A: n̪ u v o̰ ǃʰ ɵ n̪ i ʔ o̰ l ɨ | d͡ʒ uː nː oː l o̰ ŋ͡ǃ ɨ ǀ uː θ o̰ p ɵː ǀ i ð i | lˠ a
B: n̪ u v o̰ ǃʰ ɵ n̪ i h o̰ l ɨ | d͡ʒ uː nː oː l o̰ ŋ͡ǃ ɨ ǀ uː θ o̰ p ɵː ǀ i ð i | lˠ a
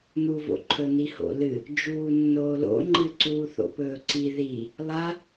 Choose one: B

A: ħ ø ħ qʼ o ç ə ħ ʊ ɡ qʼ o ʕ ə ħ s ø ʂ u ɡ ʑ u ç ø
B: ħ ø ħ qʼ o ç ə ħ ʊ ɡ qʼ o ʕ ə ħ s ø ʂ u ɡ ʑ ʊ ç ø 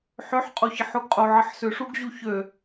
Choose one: A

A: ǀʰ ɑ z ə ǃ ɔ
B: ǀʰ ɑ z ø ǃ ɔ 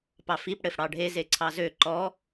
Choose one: B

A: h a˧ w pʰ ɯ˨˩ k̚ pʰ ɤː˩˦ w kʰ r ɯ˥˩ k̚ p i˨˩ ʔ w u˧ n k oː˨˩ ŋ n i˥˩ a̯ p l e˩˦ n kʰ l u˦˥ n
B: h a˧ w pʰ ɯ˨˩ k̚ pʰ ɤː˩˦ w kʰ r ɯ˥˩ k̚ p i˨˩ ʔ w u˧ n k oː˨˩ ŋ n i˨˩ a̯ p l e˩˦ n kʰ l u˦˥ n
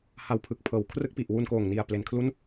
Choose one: B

